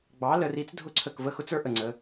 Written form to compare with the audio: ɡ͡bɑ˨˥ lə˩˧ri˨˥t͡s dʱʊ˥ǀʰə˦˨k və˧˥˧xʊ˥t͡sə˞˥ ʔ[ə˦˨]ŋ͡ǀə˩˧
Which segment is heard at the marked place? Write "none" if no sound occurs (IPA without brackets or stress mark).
ə˨˩